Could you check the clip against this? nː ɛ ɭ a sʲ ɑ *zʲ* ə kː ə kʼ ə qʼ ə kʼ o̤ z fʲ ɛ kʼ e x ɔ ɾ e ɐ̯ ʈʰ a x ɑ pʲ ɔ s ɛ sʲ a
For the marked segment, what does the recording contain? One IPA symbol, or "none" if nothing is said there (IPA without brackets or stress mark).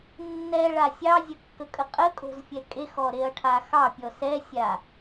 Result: zʲ